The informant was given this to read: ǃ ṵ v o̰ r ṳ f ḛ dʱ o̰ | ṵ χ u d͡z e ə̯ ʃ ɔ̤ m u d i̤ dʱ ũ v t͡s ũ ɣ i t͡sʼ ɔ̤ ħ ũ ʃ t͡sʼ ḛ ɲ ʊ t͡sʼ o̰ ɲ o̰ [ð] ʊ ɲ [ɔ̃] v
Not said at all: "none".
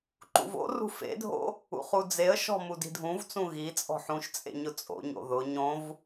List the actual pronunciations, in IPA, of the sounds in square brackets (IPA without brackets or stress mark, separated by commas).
ð, õ